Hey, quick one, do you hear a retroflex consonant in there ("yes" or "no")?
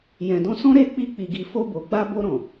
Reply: no